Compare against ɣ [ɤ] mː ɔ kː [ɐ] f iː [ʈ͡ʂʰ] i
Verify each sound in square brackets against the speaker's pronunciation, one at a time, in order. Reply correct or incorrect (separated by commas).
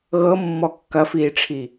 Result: correct, correct, correct